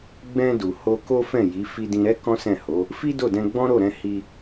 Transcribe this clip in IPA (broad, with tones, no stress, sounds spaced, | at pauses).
ɡ͡b ɛ̃˧ d u˨ h o˧ k o˦ f ɛ̃˦˨ j i˨˦ f i˧ d ĩ˧ ɾ ɛ˦ k ɔ̃˦ s ɛ̃˦˨ h o˨˦ | f i˦ d o˦˨ d ɛ̃˧ ɡ͡b ɔ̃˦ ɾ o˦˨ ɾ ɛ̃˧ h i˧